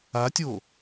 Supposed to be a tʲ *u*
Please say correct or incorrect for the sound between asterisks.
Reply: incorrect: o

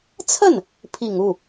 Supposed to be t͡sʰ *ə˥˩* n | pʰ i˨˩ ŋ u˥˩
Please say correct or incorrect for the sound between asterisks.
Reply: correct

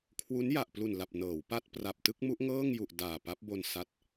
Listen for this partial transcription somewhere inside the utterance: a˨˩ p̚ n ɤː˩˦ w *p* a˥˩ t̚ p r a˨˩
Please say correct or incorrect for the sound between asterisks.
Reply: correct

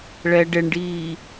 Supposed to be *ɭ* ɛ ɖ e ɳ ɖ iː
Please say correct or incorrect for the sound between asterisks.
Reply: correct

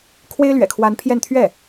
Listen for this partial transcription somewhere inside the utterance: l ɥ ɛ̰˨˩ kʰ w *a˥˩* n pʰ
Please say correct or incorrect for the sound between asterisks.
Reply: incorrect: a˧˥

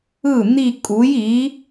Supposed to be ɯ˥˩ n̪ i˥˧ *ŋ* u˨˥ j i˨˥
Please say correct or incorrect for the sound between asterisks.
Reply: incorrect: kʼ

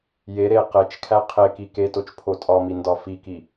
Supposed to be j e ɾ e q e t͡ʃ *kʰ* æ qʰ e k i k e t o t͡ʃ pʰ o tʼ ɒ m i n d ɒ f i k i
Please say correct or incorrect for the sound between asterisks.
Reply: correct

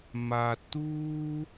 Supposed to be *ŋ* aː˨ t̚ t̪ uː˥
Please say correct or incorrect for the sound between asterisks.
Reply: incorrect: m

